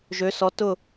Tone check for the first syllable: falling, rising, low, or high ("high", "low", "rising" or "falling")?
rising